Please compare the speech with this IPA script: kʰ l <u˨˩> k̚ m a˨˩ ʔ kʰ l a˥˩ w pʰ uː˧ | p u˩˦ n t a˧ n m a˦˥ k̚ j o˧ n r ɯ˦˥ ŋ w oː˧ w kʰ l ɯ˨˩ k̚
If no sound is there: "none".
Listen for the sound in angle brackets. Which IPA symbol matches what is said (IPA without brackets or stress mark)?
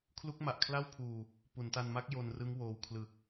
u˦˥